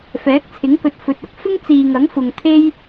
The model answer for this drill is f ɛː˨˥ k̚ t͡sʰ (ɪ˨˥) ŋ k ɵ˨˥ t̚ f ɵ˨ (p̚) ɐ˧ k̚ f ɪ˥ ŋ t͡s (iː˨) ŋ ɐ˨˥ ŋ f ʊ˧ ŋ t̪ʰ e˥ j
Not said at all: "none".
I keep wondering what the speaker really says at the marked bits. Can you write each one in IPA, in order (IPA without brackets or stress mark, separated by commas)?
ɪ˨˥, t̚, iː˨